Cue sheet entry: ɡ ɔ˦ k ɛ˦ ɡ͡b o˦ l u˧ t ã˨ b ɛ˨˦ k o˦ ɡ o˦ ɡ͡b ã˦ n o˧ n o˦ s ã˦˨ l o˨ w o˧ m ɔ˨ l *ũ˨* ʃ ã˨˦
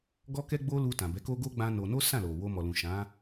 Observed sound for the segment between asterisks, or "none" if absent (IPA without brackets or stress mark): ũ˨